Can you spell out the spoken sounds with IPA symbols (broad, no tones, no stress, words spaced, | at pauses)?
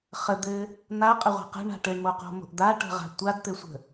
χəd̪ɘ | n̪a qʼəʁʷa̤qə̤ ɳa̤ʈɘɳmoqo̤ mo̤ʔd̪aʈə̤ʁa̤ tʷadt̪ɘsʷə̤